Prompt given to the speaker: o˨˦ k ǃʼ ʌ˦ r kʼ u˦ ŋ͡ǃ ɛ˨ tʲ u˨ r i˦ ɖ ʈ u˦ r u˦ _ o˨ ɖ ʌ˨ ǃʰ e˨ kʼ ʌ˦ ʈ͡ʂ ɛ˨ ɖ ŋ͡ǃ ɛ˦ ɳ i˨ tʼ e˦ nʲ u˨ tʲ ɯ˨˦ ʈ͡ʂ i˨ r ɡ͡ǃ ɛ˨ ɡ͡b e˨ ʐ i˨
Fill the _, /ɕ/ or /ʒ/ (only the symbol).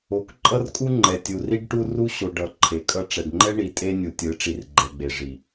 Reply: ɕ